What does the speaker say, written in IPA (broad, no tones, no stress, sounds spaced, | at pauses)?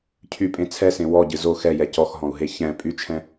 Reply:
cʰ y pʼ ẽ t͡sʰ ɛ s ẽ w ɔ ɟ ɨ z o x ɛ j ɛ c ɔ x ɦ ɔ̃ u̯ ɦ e ç ɛ̃ pʼ y t͡ʃʰ ɛ̃